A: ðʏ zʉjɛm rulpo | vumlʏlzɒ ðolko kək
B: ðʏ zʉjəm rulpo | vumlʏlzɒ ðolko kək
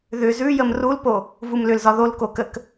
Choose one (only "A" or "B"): B